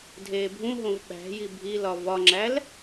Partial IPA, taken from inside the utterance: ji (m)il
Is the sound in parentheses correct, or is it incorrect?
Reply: incorrect: bʱ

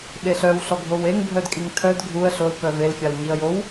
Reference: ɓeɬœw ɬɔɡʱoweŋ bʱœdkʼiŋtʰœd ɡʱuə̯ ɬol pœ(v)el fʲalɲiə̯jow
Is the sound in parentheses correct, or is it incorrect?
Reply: correct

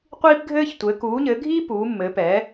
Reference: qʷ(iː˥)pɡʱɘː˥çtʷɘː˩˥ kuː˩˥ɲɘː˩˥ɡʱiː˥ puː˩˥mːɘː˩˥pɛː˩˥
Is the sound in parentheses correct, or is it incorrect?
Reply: correct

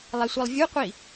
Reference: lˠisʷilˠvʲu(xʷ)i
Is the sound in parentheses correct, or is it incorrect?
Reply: incorrect: qʷ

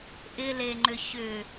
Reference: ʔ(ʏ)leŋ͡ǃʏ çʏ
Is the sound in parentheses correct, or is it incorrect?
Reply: incorrect: ɪ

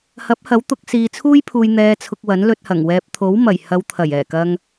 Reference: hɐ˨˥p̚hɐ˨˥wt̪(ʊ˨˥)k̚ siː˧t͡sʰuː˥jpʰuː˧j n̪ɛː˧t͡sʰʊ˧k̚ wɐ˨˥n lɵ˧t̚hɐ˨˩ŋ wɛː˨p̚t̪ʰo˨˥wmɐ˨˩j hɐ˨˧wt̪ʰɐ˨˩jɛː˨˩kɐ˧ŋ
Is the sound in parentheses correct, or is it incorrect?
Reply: correct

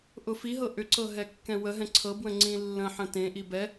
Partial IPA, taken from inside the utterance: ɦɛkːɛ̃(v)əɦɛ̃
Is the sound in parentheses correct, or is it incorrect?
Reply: incorrect: w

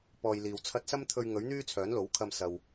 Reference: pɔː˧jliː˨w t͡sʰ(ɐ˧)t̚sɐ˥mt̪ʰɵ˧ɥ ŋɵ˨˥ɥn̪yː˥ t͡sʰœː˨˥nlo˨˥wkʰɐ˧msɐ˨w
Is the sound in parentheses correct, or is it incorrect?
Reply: correct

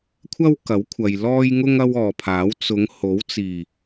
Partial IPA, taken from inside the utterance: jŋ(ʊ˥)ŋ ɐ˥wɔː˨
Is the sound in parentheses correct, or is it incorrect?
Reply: correct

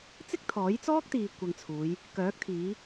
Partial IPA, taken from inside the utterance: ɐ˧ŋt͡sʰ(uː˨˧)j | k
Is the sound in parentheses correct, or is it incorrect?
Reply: correct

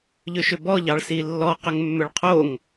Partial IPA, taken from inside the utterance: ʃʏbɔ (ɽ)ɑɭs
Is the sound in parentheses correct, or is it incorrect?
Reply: incorrect: ʎ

